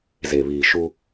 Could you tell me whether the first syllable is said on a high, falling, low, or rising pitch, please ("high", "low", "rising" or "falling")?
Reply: low